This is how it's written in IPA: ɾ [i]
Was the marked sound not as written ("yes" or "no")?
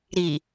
no